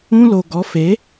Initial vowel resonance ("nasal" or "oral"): nasal